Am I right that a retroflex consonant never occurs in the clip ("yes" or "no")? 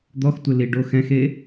no